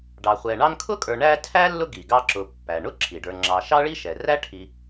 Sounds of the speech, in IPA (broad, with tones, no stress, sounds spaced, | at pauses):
ɖ ɑ˨ χʷ ɛ˨ ɳ ɑ˦ n kʰ ʊ˥ kʼ ə˞˨ ɳ æ˦ tʰ æ˥ lː ʊ˦ ɡ i˩ ɡ ɑ˦ ǁ ʊ˨ pː æ˩ ɳ ʊ˥ ǁʰ i˩ ɖ ə˞˨ ŋ͡ǁ ɑ˨ ʃ ɑ˥ ɭ i˥ ʃ ɛ˩ r æ˥ ʈʰ i˨